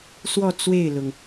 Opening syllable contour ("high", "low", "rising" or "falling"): falling